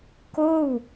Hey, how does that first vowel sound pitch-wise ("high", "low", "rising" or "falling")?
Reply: falling